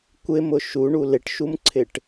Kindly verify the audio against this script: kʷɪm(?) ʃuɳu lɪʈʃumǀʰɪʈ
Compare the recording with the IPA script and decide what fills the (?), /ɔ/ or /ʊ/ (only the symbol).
ʊ